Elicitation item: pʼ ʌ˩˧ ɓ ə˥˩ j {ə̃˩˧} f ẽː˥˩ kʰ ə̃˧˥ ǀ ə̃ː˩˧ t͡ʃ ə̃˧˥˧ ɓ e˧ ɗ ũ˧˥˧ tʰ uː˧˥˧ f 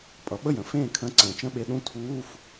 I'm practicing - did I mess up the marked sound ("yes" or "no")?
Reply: no